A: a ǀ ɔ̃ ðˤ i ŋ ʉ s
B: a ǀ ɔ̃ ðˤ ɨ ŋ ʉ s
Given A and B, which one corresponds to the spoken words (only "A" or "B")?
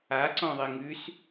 A